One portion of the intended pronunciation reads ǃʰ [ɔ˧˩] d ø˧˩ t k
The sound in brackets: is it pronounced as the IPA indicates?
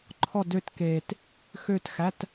yes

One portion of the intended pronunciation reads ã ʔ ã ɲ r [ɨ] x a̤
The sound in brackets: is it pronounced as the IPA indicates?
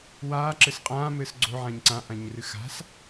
yes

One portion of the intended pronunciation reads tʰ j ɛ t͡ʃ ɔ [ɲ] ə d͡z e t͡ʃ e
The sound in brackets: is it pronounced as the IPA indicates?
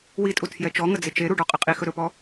no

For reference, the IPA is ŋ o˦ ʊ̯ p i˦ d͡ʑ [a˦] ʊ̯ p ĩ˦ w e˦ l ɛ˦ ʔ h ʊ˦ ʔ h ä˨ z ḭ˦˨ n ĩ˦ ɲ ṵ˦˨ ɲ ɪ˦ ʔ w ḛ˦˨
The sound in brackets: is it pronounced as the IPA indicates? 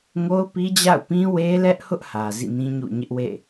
no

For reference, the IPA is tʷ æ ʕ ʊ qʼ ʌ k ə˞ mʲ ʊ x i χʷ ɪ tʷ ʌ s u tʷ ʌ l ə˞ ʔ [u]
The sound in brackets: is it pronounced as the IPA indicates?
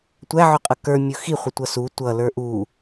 yes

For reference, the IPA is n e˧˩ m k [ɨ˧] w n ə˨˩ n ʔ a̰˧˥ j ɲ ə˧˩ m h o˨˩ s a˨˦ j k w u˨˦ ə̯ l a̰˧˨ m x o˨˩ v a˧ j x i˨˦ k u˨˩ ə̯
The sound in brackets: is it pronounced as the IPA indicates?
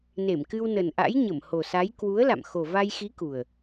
yes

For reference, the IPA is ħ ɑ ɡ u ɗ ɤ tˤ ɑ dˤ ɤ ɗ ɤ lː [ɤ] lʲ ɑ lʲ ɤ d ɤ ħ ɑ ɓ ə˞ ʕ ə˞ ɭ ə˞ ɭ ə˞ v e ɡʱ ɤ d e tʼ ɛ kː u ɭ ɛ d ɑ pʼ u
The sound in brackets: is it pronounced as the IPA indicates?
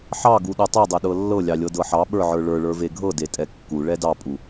yes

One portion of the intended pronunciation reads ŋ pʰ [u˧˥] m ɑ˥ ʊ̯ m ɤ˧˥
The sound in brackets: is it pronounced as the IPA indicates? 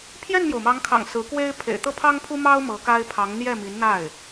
no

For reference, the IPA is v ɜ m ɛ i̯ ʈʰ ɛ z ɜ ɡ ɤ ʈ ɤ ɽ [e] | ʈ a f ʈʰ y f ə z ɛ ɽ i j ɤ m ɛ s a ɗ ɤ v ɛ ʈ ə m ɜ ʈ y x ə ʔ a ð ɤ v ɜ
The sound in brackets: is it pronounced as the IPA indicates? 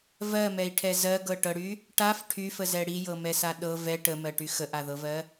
no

